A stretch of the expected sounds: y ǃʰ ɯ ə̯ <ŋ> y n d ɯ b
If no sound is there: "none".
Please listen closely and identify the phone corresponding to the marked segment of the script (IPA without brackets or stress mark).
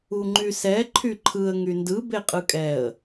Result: ŋ